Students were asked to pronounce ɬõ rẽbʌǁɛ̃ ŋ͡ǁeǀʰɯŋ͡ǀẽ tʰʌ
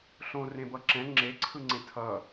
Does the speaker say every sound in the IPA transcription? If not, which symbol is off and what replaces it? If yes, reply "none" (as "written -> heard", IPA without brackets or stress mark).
none